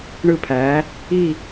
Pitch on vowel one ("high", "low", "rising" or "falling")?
falling